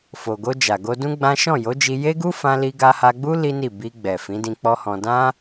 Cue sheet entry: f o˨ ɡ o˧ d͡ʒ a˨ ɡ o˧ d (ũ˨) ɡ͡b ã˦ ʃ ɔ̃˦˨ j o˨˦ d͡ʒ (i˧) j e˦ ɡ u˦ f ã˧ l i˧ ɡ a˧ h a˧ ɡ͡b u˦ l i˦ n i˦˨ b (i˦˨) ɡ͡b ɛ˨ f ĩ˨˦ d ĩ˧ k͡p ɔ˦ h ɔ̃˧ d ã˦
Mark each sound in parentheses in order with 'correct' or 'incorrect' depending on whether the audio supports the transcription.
incorrect, correct, incorrect

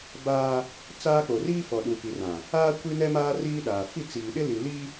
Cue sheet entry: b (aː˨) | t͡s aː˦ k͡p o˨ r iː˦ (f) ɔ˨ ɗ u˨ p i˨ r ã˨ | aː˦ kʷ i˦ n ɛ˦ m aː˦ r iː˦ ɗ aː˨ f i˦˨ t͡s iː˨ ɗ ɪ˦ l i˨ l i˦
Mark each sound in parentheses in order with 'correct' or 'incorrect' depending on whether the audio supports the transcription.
incorrect, correct

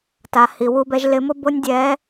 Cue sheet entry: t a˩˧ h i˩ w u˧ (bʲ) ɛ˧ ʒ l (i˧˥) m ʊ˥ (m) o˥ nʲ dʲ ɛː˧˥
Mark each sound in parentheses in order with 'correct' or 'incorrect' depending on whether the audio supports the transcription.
incorrect, incorrect, incorrect

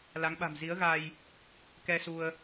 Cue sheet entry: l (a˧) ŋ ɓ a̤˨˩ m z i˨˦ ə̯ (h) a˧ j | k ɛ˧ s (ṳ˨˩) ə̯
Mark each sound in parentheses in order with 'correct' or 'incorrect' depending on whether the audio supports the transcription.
incorrect, incorrect, incorrect

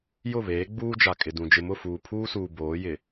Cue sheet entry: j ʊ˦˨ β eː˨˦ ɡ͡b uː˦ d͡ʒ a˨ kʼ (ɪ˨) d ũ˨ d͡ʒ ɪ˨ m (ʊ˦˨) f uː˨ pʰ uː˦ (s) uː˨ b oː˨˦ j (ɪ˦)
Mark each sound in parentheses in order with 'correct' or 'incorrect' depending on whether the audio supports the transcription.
correct, correct, correct, incorrect

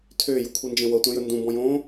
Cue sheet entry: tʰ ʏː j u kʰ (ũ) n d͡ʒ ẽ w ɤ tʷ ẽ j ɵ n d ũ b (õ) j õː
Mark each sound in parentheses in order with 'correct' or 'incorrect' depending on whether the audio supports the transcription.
incorrect, incorrect

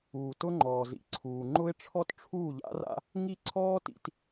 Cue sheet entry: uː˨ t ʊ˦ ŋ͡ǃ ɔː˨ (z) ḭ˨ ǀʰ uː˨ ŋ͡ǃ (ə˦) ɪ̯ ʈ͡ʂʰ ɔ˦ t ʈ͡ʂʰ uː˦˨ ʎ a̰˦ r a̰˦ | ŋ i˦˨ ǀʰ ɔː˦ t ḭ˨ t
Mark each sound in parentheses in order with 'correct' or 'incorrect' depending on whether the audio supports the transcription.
correct, incorrect

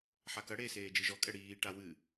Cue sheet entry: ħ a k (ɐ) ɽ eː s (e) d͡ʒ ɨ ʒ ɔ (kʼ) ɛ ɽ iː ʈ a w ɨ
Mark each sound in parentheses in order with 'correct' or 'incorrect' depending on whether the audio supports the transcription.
correct, incorrect, correct

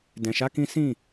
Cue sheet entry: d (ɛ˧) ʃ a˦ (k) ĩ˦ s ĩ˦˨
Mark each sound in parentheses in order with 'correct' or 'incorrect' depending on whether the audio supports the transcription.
incorrect, correct

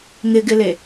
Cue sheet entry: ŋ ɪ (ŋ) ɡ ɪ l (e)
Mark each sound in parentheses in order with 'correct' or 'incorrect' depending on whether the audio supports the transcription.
incorrect, correct

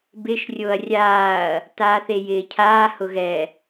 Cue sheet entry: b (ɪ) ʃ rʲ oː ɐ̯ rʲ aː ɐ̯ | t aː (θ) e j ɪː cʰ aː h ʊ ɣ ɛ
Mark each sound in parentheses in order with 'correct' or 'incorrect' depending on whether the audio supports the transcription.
correct, correct

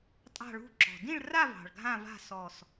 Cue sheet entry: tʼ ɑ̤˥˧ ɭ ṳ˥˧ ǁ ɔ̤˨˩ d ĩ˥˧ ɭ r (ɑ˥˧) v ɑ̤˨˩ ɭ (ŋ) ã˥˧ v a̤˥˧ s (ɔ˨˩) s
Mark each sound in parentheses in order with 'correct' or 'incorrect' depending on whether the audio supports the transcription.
incorrect, incorrect, correct

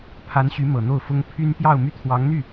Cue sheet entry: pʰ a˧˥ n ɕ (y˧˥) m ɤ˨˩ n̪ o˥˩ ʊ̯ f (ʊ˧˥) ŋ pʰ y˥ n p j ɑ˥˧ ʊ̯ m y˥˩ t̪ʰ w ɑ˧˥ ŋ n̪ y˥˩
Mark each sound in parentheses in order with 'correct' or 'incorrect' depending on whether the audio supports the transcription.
correct, incorrect

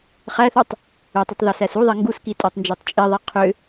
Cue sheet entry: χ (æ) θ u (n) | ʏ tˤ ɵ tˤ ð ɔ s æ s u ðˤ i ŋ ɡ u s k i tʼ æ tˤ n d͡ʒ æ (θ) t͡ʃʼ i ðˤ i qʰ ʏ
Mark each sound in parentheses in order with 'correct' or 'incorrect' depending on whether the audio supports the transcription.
correct, incorrect, incorrect

